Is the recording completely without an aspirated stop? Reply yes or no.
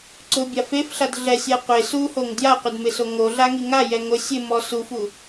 yes